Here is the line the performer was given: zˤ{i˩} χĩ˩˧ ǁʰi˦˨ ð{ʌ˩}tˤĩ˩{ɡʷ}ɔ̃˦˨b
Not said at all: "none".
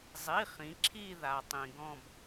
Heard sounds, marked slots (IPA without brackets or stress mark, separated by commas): i˩˧˩, a˩, ɡ